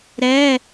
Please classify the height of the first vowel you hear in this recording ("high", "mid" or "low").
mid